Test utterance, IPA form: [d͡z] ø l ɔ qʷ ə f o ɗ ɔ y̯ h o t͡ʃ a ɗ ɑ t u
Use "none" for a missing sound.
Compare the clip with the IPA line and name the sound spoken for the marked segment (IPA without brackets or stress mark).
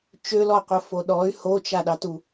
t͡ʃ